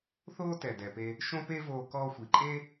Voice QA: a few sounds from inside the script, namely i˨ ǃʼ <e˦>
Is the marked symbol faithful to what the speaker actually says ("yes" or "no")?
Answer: yes